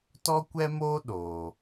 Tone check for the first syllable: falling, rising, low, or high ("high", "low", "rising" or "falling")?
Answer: high